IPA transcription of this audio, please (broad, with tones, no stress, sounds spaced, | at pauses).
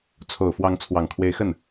t͡sʰ o˨˩ ʊ̯ f w ɑ˧˥ ŋ t͡sʰ w ɑ˨˩ ŋ kʰ w e˧˥ ɪ̯ x ə˥˩ n